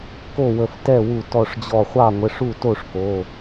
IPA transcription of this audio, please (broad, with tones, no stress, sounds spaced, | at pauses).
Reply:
k o˥˩ w ə˧˩ f t ɛ˥˩ w u˧˩ t ɔ˧˩ ʂ d͡ʑ ɔ˧˩ χʷ ɑ˥˩ ŋʷ ə˩˧˩ ʂ u˥˩ t o˥˩ ʂ k o˩˧˩